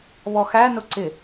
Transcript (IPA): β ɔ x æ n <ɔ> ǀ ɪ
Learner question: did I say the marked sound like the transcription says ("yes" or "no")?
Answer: no